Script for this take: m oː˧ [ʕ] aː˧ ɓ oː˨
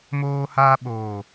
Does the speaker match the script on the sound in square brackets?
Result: no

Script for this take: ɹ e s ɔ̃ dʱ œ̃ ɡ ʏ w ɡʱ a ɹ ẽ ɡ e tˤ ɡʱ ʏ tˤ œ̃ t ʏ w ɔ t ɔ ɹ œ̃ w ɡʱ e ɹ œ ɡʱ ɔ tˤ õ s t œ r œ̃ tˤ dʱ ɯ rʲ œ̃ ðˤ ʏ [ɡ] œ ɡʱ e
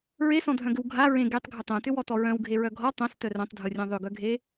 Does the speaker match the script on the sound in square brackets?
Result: yes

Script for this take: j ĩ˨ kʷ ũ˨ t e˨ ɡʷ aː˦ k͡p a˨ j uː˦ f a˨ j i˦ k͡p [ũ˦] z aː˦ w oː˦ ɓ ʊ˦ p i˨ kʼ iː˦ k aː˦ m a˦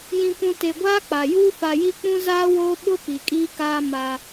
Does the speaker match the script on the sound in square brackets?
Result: yes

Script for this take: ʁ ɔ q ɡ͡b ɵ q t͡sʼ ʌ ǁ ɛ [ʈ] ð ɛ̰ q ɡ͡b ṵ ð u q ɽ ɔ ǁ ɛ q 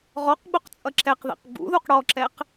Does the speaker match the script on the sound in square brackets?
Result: no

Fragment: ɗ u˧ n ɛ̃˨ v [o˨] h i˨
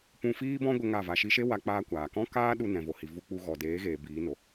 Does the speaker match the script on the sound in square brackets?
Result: yes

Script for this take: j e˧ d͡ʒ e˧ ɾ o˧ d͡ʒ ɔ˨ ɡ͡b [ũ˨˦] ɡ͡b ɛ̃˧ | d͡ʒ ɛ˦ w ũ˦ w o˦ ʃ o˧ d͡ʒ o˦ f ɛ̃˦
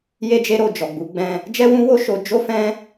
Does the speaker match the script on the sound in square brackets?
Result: no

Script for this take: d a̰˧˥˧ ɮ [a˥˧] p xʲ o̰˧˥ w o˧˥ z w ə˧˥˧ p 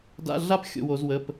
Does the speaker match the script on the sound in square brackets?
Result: yes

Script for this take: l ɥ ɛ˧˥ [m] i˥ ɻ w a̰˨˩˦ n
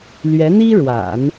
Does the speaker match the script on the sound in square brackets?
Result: no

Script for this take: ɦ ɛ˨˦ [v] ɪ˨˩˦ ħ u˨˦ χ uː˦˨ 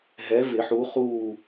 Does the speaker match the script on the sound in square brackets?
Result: yes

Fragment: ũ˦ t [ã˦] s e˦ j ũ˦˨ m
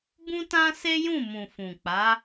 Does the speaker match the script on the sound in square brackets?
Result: yes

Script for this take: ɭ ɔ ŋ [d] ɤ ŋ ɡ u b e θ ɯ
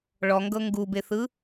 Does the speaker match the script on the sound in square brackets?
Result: no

